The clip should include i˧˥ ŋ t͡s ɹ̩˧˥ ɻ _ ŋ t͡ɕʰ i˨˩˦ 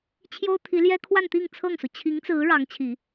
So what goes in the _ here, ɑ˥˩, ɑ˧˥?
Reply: ɑ˧˥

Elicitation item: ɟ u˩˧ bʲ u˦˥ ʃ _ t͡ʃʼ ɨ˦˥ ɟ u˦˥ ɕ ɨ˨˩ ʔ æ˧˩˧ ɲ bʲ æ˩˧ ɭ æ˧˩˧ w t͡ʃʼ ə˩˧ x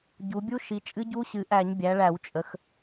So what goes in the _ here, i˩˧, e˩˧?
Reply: i˩˧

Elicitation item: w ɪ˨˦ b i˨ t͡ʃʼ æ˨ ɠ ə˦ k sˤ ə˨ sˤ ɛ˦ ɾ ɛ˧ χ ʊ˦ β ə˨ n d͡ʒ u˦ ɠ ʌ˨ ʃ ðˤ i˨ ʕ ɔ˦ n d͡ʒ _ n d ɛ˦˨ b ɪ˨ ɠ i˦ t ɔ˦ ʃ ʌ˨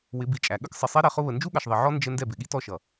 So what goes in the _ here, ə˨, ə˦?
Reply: ə˦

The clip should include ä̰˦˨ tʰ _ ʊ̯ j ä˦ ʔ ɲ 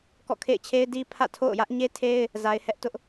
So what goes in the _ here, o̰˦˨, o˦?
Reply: o̰˦˨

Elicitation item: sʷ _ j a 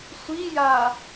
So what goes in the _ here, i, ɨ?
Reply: i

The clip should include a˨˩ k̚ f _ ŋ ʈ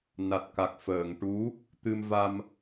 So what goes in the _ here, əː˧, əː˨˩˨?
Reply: əː˨˩˨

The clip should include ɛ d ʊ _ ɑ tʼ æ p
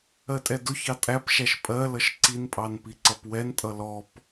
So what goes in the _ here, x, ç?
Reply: ç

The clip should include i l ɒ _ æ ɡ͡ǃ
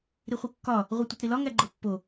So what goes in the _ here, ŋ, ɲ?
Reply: ŋ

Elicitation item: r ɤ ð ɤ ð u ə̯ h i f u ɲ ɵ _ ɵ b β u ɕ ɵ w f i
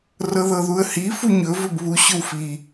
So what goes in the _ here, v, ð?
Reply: v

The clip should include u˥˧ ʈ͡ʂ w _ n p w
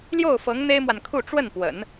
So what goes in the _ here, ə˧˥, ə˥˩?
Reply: ə˥˩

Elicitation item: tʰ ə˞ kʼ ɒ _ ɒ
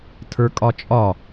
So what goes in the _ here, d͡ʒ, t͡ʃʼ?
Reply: t͡ʃʼ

